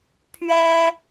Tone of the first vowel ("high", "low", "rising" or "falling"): high